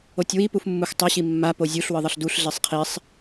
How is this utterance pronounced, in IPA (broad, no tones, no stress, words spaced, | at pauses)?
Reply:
otʲwi pufmːuxtˤʌ ɕimːa pozʲuɬ wɯðˤʌɬduɬ ɮesˤqʰisˤ